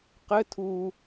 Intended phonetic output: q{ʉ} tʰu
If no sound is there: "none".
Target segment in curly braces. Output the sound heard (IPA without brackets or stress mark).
ɘ